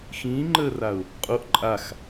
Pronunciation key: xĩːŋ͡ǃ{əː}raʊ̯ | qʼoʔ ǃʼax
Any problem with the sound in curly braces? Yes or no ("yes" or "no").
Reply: no